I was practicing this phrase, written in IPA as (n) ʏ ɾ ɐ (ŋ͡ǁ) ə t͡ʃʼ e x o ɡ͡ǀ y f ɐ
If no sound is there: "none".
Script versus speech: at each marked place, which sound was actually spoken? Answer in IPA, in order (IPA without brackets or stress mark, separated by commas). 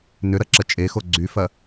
n, ǁ